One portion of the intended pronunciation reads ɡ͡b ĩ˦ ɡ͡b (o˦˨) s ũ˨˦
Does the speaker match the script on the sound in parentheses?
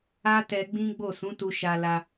yes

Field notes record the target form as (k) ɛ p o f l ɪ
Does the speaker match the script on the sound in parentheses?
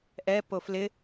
no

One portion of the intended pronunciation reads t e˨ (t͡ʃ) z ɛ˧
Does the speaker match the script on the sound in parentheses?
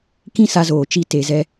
no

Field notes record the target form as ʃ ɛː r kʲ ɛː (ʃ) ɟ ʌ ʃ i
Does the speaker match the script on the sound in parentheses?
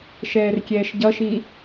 yes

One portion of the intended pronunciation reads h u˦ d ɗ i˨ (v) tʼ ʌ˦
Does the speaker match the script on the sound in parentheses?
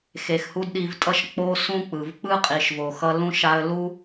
yes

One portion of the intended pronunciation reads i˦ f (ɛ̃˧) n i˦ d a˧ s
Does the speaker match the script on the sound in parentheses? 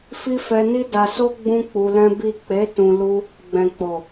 no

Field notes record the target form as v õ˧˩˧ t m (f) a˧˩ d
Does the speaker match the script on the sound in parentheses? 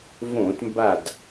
no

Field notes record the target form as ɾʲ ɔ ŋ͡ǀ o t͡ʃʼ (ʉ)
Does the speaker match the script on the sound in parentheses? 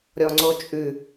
yes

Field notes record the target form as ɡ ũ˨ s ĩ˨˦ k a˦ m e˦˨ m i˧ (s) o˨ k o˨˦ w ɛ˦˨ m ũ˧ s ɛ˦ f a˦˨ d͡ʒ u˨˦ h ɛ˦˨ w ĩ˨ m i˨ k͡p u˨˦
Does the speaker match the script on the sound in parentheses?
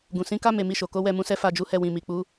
no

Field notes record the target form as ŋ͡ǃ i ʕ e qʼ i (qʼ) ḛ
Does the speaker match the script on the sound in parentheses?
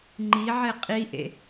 no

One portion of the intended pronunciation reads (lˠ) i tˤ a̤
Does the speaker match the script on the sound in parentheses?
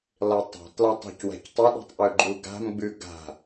yes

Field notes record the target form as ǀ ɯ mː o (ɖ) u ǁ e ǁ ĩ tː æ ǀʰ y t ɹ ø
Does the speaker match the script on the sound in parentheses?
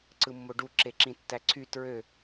yes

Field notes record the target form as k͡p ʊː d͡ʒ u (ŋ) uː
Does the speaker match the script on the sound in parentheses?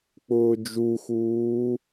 no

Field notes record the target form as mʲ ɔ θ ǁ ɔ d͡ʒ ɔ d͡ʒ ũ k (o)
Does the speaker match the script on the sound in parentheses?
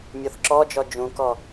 no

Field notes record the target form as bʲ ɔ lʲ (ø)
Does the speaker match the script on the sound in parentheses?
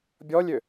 yes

